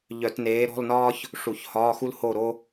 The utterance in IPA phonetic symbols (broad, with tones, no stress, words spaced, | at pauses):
ʎœ˧˩˧tneː˨˥ ɾɔ̤˧˥˧lnɒː˥ç | ʂu˧˩˧çhɒː˧˥˧xu˥l ho˥˨ɾo˥